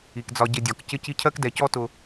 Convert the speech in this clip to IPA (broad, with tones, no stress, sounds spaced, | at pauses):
i˩ k d͡z ɒ˨ ɟ ɪ˨ dʲ ɒ˩ k c ɪ˦ c i˦ cʰ ɜ˥ k d ɛ˩ c ɔ˥ t ʊ˨